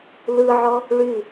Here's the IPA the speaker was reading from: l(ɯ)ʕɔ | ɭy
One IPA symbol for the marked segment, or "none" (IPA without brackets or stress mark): ɯ